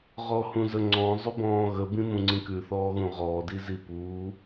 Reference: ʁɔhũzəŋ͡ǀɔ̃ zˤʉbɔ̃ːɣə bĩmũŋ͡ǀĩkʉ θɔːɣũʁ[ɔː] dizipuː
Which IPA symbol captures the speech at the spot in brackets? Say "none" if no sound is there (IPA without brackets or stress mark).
ɔː